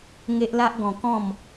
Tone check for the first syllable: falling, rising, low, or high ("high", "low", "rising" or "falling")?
high